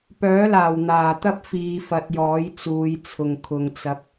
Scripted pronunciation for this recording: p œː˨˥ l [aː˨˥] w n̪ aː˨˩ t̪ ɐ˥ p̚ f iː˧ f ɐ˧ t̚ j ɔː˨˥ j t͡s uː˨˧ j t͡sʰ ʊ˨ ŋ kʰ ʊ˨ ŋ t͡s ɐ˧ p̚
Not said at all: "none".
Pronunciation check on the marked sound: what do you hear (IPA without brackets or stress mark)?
aː˨˩